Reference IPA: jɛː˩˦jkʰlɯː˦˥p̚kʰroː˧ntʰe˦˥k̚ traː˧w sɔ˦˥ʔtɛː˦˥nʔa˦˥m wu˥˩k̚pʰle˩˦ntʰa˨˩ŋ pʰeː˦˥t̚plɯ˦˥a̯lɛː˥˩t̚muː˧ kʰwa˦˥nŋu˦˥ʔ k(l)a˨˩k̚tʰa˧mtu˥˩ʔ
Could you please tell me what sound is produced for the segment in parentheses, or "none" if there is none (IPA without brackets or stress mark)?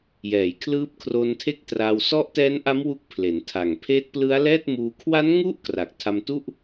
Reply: r